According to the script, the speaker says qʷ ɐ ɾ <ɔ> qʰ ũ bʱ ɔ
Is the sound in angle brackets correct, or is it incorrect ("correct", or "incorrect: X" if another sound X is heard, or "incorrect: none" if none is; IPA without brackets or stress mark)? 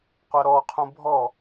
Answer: correct